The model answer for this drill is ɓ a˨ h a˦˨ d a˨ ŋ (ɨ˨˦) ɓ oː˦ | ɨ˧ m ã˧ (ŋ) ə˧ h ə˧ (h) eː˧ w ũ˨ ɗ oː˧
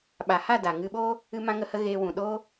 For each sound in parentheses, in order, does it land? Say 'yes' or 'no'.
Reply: no, yes, no

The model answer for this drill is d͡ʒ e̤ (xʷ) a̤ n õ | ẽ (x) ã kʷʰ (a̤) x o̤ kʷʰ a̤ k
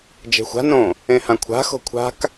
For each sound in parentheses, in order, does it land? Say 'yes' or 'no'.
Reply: yes, no, yes

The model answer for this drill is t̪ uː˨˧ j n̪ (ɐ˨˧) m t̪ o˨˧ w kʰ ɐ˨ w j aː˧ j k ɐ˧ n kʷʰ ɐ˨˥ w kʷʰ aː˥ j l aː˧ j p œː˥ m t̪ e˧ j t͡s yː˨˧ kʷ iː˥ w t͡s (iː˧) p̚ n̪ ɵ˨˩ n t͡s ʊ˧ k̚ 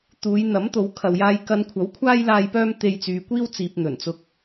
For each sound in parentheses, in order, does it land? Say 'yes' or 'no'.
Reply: no, no

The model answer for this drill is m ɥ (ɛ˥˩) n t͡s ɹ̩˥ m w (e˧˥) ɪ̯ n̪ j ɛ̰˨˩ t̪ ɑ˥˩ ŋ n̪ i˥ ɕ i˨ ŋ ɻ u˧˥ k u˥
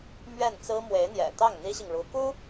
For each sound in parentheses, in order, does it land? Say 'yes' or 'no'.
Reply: yes, yes

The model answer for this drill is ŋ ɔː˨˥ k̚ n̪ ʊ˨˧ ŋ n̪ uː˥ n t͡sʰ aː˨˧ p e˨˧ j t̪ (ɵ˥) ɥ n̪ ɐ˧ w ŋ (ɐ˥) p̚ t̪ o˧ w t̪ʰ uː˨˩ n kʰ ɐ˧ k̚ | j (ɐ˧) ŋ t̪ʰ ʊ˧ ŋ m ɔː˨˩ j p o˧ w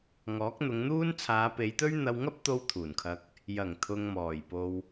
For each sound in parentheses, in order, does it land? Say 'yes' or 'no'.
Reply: yes, yes, no

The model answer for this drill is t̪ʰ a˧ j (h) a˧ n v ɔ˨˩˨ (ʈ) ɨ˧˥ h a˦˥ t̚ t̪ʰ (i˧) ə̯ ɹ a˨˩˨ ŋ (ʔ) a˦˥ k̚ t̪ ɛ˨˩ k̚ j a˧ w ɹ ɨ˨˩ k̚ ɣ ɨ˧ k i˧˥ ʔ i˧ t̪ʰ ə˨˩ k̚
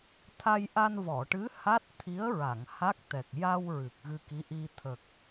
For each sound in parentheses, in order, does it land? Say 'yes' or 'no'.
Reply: no, yes, no, no

